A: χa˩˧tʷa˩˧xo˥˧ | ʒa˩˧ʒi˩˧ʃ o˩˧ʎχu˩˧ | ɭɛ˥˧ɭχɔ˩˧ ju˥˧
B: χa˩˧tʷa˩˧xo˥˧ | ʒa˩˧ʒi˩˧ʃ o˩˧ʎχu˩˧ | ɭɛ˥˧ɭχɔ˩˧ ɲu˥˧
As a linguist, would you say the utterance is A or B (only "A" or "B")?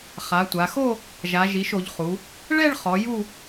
A